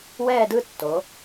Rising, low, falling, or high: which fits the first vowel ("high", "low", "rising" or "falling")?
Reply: falling